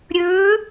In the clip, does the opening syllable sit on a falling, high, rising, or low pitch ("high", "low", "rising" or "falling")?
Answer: rising